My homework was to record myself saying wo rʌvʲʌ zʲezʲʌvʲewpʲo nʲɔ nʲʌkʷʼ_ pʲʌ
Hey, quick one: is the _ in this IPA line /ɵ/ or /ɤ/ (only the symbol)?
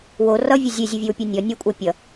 ɤ